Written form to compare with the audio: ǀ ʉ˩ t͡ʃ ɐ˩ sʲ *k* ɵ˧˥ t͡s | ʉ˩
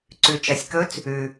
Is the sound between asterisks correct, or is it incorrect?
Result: correct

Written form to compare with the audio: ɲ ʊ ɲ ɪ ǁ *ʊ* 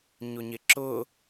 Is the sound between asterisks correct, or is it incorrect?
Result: correct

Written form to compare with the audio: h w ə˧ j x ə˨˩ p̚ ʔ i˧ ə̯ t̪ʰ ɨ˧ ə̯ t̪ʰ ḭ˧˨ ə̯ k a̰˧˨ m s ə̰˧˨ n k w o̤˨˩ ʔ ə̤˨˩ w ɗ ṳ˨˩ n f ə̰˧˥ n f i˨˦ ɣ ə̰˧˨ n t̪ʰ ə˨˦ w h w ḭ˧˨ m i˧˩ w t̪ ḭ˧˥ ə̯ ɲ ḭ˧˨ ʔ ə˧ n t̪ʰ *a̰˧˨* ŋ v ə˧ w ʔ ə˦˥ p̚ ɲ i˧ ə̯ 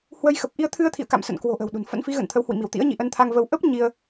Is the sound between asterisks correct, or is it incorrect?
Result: incorrect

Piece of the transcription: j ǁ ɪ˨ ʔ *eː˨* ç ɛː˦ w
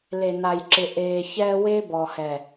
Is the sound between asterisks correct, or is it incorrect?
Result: correct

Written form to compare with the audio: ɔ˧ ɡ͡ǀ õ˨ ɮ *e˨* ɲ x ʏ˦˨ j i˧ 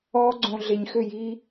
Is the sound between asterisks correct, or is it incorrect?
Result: correct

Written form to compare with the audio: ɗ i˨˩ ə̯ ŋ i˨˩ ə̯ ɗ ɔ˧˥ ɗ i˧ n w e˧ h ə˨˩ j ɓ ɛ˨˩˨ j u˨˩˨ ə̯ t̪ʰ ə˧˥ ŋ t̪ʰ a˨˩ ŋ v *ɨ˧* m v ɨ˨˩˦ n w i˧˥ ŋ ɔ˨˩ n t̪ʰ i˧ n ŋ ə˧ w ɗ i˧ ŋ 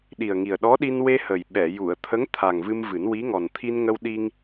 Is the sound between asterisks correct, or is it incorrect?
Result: correct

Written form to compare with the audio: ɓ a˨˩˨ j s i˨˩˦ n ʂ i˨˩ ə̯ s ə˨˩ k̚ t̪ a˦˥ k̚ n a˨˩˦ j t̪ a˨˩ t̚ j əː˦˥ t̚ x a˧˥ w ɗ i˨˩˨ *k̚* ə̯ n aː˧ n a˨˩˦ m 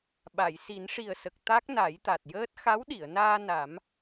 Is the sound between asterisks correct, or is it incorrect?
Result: incorrect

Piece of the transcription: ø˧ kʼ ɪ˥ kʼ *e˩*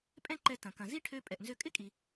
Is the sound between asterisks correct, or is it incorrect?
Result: incorrect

